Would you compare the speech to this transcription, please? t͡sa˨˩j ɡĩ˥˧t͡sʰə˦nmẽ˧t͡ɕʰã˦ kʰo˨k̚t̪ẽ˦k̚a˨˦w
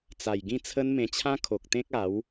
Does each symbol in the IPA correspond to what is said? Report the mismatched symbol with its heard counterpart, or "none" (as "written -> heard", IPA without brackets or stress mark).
none